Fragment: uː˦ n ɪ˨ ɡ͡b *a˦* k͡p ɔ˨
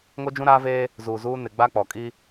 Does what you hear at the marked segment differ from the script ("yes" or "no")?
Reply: no